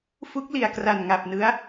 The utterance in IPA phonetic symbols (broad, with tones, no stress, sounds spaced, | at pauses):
f u˦˥ k̚ l i˨˩ a̯ k r a˨˩ n ŋ a˨˩ p̚ n ɯ˦˥ a̯